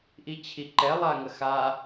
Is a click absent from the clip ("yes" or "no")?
no